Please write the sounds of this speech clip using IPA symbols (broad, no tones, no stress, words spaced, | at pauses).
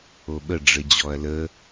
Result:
oɓə ɖ͡ʐɘd͡ʑɔɐ̯lə